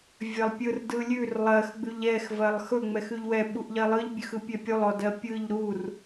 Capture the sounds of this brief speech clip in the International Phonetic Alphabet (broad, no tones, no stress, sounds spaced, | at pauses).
vʲ ɜ lˠ pʲ ɯ r d ɯ lʲ ʉ r lˠ ɜ x ɡ͡b ʉ ʎ ɛ x v ɜ lˠ x ɵ ŋ͡m ɛ x ʉ ʎ w ɛ ɓ u ʔ ʎ ɜ lˠ ɯ ʎ bʲ ʉ x ɯ pʲ ɛ pʲ u lˠ ɔ d ɜ pʲ ɯ ʎ ɾ u r